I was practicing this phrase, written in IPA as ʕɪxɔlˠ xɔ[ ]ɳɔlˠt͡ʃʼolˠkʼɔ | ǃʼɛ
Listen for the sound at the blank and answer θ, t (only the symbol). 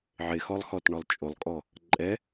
t